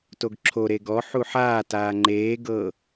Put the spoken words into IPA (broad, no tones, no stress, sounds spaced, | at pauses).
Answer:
t o ɡ ǁʰ o ɾ e ɡ ɔ ħ u ħ aː t aː ŋ͡ǃ eː ɡ ɤ